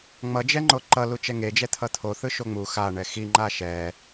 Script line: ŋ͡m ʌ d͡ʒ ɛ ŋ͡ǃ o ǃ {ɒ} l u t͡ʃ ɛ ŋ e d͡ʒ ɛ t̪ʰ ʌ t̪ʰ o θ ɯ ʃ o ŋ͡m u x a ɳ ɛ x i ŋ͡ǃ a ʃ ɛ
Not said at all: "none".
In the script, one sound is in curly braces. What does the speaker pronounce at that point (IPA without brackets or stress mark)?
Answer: ʌ